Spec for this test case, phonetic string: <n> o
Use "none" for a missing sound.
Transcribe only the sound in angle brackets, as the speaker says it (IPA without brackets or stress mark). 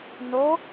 n